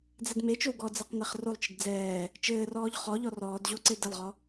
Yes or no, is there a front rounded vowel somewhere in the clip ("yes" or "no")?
no